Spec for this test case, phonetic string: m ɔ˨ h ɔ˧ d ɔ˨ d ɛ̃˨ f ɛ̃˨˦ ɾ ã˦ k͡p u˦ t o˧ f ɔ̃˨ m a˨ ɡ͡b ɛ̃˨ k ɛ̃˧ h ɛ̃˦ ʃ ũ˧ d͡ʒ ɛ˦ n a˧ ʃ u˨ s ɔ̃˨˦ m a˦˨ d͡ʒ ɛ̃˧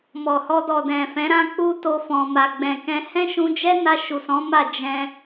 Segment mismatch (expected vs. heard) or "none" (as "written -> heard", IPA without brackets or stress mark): none